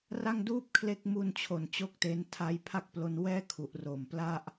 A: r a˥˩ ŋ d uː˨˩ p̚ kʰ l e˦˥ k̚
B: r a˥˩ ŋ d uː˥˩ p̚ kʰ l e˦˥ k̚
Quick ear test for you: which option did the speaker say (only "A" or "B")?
B